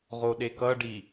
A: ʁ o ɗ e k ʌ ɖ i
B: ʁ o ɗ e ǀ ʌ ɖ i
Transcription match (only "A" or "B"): A